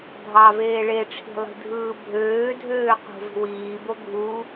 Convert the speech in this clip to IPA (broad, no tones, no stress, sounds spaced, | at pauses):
dʱ ɑ v eː ɭ e ʈ͡ʂʰ i̤ lˠ i̤ dʱ ɯː bʱ øː dʱ øː q ṳ v i̤ w iː b o ɡʱ u